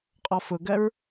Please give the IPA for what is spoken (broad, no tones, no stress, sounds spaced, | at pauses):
qʼ ɔ f ʊ ɡ ɜ ɹ